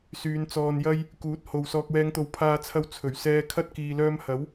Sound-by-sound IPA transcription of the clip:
s yː˨˧ n t͡s ɔː˧ n j ɐ˥ j | k uː˨˥ t̚ h o˨ w s ɔː˨ k̚ w ɛː˨˧ ŋ t̪ o˨ w pʰ aː˧ t͡sʰ ɐ˧ w t͡sʰ ɵ˨˩ ɥ s ɛː˧ kʰ ɐ˥ t̚ k iː˨ l œː˧ m h ɐ˨˥ w

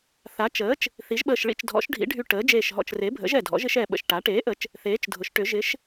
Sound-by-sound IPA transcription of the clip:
θ a˩˥ t͡ʃ əː˩˥ t͡ʃ | θ i˩˥ ʒ ɓ əː˧˩ ʃ ɭ ḭ˧˩ t͡ʃ dʱ ɔ̰˩˥ ʃ ɖʱ ḭ˩˥ ɖʱ y˧˩ ʈ əː˩˥ d͡ʒ eː˧˩ ʃ ɦ ɔ̰˧˩ t͡ʃ r e˩˥ bʱ ə̰˩˥ ʒ ɛ˧˩ dʱ ɔ̰˩˥ ʒ ɪ˩˥ ʃ ɛ˧˩ ɓ ə̰˧˩ ʃ ʈ a˩˥ ʈ eː˩˥ ʔ ə˩˥ t͡ʃ | θ eː˩˥ t͡ʃ dʱ ʊ˩˥ ʃ ʈ ʏ˩˥ ʒ ɪ˩˥ ʃ

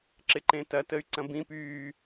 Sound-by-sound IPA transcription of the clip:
ǁ ɪ ǃ ẽ t ɐ t ə y̯ ǀ ɐ̃ b ĩ p yː

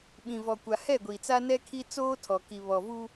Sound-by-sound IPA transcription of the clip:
ɓ ĩ˨ v ɔ˨ kʷ a˨ h ɛ˦˨ ɡʷ i˨ t͡s a˦ n ɛ˦ kʰ i˦ t͡s oː˦ tʰ ɔ˨ k i˨ β ɔ˨ v u˦

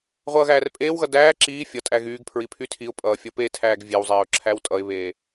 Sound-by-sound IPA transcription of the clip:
ʁʷ ʌː ɣ æː r pʼ eː w ɣ ʌ d æː ǁ iː fʲ ʌ tʼ æ ɣ yː ɡ pʰ ɹ i pʰ y tʰ i ʊ̯ pʼ ʌː fʲ ʌ p e tʰ æː ɡ vʲ e w zˤ eː ʊ̯ ǁʰ æ w tʼ ʌ ɪ̯ β eː

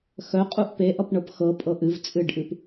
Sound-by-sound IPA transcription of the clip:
x œ qʼ u ʔ p e ʔ ʌ p ɳ ɤ p x ɤ pʼ ɤ ʔ ɨ v t͡sʼ ɨ ɖ ʔ ɨ p

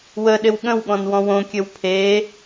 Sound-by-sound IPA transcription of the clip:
w ə ɗ ɪ w ɠ ə̃ w ɠ ɔ̃ n w ɔ̃ w õ kʲ ɘ w pʰ e

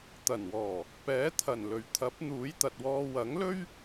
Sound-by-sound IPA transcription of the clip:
t̪ ɐ˨˩ n w ɔː˨˩ | p ɛː˨˥ t̪ʰ ɐ˨˩ n l ɵ˨˩ ɥ t̪ʰ ɐ˨˥ p̚ n̪ uː˨˥ j t̪ ɐ˨ t̚ w ɔː˧ w ɐ˨˥ ŋ l ɵ˥ ɥ

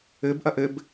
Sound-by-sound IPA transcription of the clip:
ɘ b ʔ ɐ ʔ ɘ b

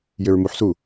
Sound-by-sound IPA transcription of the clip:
j ʏ ɹ m u ħ s u

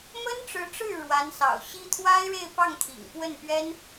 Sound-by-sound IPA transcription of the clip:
m ə˥ n ʈ͡ʂ ɻ̩˧˥ ʈ͡ʂ ɻ̩˥˩ ɻ w a˧˥ n s ɑ̰˨˩ ʊ̯ ɕ i˥ t̪ʰ w a˥ ɪ̯ ɻ e˥˧ ɪ̯ p ɑ˥˩ ŋ t̪ʰ ḭ˨˩ ŋ p w ə˥˩ n p ɥ ɛ˥ n

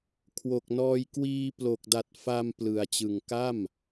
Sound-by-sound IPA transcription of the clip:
kʰ w o˨˩ k̚ n ɔː˧ j k w iː˧ p l o˨˩ k̚ d a˨˩ t̚ f a˧ m p l ɯ˨˩ a̯ t͡ɕ ɯ˨˩ ŋ k a˥˩ m

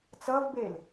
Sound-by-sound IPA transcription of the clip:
t͡s ʌ v b e l

